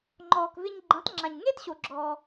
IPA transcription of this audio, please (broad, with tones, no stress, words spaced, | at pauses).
ŋ͡ǃɔː˩kvɪ˧ɲ ɡ͡ǃẽ˩˥tˤŋ͡ǁã˩ɲ ŋe˥tɕo˩ ɡ͡ǁɔː˩